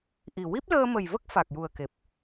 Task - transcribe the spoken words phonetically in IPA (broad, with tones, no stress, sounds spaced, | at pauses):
ʔ i˨˩ w i˦˥ p̚ l əː˧ m ə˨˩ j v ə˦˥ k̚ f a˨˩ k̚ j u˨˩ ə̯ k e˨˩ p̚